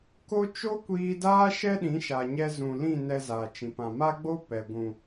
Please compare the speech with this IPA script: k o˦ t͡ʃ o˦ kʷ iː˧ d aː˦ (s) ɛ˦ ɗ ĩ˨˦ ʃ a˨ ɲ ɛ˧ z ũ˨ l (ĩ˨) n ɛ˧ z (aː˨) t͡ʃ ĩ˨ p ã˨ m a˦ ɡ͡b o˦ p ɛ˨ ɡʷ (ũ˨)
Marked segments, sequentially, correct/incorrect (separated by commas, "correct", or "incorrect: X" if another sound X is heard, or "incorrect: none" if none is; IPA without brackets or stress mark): incorrect: ʃ, incorrect: ĩ˦˨, correct, correct